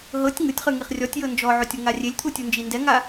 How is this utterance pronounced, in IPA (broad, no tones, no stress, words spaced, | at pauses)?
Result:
ɦɤtʲ ŋɯtʲχɯ ŋiχrʲɔtʲjɤ nd͡ʒɔʕotʲ oŋarʲelʲt̪ʰu tʲund͡ʒindɛŋa